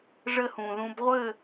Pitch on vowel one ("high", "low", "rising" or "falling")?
high